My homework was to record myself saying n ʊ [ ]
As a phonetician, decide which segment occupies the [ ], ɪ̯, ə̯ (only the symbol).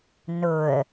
ə̯